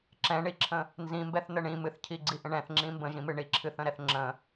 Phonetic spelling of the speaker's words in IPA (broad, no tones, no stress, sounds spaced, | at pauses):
ǁ ɛ̃ ɳ i ǁʰ ə̃ | n z ĩ m b ɛ θ n ə ɳ ĩ m ɨ θ cʰ i ɡ͡ǀ i ʔ ə̃ ɳ ɛ̃ θ ŋ͡ǁ ĩ m b ə̃ ʒ ĩ m ɨ ɳ i ǁʰ ɨ θ ə̃ ɾ ɛ θ ŋ͡ǁ ə̃